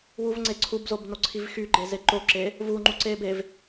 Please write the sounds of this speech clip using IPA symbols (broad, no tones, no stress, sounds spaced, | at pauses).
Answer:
w u v ŋ͡ǀ e ǀʰ u b z o b n o ǀʰ i v x y ɡ͡ǃ e z e ǃ o ǁ e | v u ŋ͡ǃ u ǀ e b e v